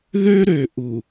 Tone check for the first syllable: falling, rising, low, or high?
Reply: high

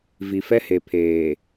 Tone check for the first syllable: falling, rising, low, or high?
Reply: low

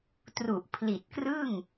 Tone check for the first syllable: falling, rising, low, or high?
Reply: low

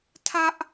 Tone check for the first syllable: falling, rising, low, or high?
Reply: high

